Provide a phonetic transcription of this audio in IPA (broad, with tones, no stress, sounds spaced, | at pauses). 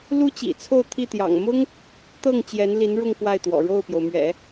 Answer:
l u˥ t͡ɕ ḭ˨˩ t͡sʰ o˥˧ ʊ̯ t̪ʰ i˥˩ t̪ j ɑ̰˨˩ ŋ m ʊ˥ ŋ | t̪ ɤ˥˩ ŋ t͡ɕ j ɛ˧˥ n l i˧˥ n ɻ ʊ˥˧ ŋ k w a˥˩ ɪ̯ t̪ w ɔ̰˨˩ ɻ o˥˩ ʊ̯ p j o˩ ʊ̯ m ɥ ɛ̰˨˩˦